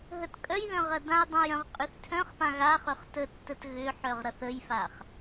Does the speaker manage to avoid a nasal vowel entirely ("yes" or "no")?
no